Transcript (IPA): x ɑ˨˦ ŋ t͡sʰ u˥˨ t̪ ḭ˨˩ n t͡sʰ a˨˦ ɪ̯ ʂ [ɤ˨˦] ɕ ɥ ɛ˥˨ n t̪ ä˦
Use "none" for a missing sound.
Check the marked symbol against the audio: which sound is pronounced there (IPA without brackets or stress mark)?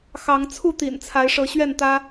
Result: ɤ˨˦